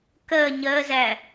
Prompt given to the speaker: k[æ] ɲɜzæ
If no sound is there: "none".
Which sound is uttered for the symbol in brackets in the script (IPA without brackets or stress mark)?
ɜ